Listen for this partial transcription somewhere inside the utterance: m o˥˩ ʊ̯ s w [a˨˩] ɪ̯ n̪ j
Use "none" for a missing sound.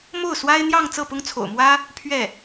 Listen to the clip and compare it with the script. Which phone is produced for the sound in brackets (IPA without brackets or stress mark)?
a˥